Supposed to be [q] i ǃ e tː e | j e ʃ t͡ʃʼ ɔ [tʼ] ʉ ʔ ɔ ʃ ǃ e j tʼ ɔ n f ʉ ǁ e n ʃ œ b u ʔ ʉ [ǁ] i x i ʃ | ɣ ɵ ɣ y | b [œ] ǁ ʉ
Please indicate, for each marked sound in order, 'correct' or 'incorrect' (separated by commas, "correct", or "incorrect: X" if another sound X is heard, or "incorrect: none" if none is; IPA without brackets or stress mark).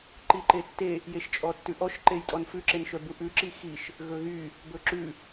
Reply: incorrect: ǃ, incorrect: tː, correct, incorrect: ɵ